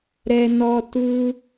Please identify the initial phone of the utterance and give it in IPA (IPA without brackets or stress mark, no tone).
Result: ɾ